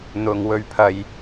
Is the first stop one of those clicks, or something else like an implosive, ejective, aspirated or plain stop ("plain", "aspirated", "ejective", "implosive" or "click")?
aspirated